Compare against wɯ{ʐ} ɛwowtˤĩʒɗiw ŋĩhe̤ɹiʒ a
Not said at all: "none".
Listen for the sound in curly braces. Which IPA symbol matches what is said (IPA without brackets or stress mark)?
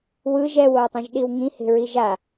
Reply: ʒ